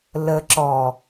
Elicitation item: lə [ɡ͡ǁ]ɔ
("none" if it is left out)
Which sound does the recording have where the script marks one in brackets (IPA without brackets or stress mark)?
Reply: ǁ